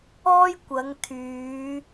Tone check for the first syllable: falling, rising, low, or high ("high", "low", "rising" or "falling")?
high